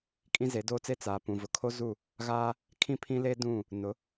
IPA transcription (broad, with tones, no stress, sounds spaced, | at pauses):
kʼ ĩ˦ z e˨˦ d oː˦ t͡s e˦ t͡s aː˨ p ũ˨ v ʊ˨ kʰ o˦ z u˦˨ | ɣ aː˦ | kʰ ĩ˦ pʰ ĩ˦ l e˦ d ũ˦˨ | n ʊ˨˦